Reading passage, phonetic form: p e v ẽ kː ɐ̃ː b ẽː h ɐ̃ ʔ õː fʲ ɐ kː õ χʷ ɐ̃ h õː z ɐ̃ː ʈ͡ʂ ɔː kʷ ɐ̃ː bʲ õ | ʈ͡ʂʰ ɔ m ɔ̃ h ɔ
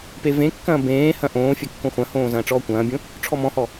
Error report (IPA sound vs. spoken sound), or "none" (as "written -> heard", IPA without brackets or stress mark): none